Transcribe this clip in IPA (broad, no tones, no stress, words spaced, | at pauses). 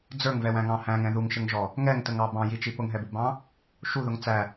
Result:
d͡zə˞ŋvɛwæ̃ŋɑ̃ hæ̃ŋɛ̃ ðuŋʃɪŋʒɔ | ŋɛŋtəŋɑ bɑ̃jit͡ʃi pʊŋɦɛbubɑ̃ | ʃuðʊŋ t͡sæ